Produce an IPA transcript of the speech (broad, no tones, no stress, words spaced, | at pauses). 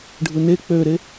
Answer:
ɖʱɯne k͡pøɾe